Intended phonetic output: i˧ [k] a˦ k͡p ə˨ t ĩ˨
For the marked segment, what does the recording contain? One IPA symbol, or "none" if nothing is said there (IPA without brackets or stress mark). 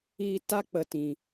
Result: t